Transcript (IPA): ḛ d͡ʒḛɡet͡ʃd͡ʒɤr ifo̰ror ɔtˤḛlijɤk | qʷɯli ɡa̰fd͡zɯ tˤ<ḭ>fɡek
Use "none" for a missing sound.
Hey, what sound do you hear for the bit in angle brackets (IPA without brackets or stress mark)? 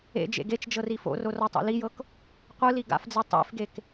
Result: ḛ